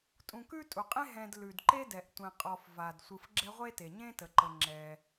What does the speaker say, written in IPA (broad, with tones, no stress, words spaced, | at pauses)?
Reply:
tʼũ˨kʉ˥tʼu˩qʼẽ˥ ɦɛ̃˨d lʉ˩dǃe˦dɛ˩ʔ tʷɛ̃˨qʼɔ˨fva˩d sʷɯ˨f ɡ͡ǁɛ˦ʁʷe˥ te˩ɲẽ˥tə˩ǃə˨ ŋ͡ǁɛ˨